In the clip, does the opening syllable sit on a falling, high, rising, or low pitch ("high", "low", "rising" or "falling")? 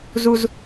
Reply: low